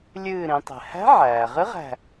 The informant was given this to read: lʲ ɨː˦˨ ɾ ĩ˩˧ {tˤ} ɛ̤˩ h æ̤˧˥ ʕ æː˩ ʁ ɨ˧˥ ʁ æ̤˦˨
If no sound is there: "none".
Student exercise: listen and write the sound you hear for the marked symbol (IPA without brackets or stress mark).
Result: tˤ